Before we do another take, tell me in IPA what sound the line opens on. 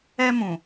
ɛ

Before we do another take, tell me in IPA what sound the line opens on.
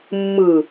mː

